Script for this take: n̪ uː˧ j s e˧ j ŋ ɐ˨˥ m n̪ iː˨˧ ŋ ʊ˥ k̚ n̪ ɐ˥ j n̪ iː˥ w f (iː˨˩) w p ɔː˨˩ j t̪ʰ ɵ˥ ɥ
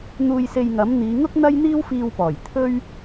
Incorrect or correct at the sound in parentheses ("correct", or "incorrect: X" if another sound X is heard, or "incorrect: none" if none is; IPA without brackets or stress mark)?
incorrect: iː˧